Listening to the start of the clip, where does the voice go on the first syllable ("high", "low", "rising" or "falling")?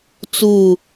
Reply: falling